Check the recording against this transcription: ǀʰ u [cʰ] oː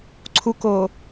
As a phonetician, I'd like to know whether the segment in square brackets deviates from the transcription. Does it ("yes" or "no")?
yes